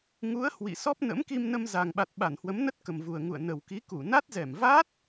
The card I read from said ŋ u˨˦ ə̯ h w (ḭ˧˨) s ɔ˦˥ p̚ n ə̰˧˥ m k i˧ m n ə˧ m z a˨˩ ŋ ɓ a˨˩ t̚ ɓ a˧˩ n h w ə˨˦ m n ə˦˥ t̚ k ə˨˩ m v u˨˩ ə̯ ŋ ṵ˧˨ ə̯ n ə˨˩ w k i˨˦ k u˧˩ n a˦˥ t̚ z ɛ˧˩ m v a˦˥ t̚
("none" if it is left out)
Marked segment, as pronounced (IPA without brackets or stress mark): ḭ˧˨